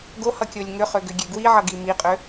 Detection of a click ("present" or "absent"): absent